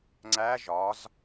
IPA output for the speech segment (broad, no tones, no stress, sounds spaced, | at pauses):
ŋ͡ǀ æ ʒ ɒ z